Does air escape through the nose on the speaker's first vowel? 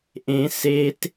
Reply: yes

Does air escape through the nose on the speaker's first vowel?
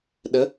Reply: no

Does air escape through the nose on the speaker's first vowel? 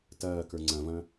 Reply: no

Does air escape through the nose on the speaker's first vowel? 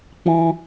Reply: yes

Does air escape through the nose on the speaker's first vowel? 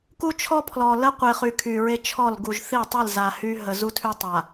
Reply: no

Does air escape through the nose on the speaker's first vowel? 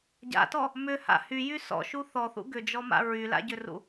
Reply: no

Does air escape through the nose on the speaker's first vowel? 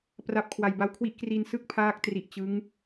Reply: no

